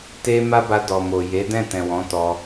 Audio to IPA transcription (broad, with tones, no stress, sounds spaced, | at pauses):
t e˧ m a˦ b a˧ d ɔ˨ m o˨ j e˨˦ d ɛ̃˦˨ t ɛ̃˨ w ɔ̃˨˦ t ɔ˧